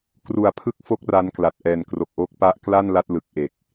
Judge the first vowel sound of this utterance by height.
high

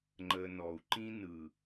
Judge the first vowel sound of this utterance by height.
mid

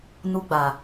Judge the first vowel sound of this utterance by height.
high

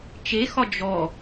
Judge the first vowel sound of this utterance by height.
mid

